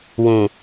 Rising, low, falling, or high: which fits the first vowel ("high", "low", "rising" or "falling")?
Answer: low